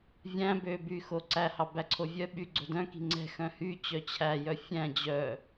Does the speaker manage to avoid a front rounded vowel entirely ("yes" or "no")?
no